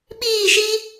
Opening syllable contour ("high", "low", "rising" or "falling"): falling